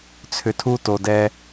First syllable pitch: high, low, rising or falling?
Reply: low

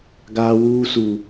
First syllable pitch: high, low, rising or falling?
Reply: high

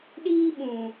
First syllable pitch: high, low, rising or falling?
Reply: high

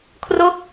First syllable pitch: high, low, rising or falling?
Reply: falling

